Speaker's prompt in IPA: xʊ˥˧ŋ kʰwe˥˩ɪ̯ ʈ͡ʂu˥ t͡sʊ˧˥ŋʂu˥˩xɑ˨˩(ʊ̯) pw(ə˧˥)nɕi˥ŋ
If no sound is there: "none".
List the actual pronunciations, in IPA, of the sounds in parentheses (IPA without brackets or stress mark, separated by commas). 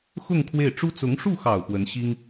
ʊ̯, ə˧˥